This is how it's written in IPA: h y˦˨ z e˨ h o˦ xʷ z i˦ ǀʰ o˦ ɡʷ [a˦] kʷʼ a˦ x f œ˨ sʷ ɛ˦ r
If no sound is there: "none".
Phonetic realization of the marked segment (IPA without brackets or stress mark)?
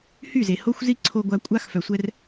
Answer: a˦